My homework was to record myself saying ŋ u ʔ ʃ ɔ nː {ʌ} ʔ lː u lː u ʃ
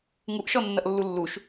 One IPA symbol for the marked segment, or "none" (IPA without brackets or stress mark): ʌ